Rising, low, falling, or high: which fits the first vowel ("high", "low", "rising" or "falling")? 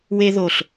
high